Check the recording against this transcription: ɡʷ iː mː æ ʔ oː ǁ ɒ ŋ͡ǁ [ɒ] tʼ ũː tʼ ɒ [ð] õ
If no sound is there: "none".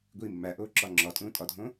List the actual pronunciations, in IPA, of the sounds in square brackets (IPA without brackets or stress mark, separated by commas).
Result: ɒ, dʱ